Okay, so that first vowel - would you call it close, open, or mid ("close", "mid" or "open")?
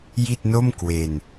close